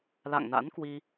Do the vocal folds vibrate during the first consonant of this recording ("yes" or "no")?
yes